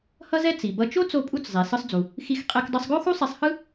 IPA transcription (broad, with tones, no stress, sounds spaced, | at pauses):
h ʌ˥ z ɛ˥ t͡s i˩ b ʌ˧ t͡ʃ o˥ t͡s o˧ pʼ u˧ t͡s zˤ e˩ s ɯ˧ sˤ d͡z u˩ | x i˧ x qʼ ɛ˧ k dˤ ɯ˧ sˤ ɡ o˥ x u˥ sˤ i˧ sˤ h ɯ˥